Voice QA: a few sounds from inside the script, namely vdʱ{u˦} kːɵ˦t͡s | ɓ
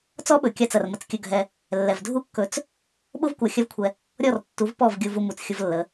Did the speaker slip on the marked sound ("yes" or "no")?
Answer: no